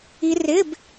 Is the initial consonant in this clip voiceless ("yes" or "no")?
no